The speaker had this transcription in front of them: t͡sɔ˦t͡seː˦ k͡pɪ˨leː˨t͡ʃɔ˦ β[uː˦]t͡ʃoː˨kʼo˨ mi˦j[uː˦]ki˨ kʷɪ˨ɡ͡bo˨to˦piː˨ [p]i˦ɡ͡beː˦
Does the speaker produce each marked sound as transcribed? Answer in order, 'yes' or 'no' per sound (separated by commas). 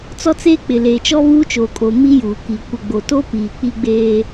yes, no, no